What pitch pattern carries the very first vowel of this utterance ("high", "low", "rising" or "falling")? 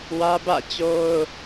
high